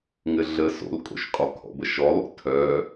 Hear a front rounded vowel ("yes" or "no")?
yes